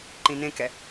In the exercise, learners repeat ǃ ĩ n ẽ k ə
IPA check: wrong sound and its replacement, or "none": ə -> ɛ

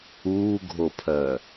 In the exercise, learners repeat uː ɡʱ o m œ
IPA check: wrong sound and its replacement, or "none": m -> pʰ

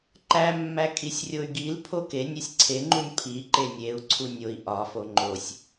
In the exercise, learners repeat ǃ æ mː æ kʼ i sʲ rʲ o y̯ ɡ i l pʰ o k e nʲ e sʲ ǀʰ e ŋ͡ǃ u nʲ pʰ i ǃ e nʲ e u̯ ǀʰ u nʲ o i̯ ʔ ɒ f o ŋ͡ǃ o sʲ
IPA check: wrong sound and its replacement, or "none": none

